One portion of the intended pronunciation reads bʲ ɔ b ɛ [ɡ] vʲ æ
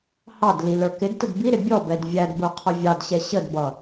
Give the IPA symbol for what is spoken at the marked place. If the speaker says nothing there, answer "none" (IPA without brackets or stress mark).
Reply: d